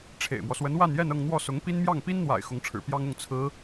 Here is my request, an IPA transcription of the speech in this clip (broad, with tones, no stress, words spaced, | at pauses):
ʈ͡ʂʰḛ˨˩ɪ̯mwɔ˦ swə˧˥nwa˥˧njɛ˥˧nɤ˥˧ŋ n̪wɔ˥˩sʊ˧˥ŋpi˥n mjɑ˥˩ŋpi˥nn̪wa̰˨˩ɪ̯ xʊ˧˥ŋʈ͡ʂʰɻ̩˨˩ pjɑ˥ŋʊ˥˩ŋ t͡sʰɹ̩˧˥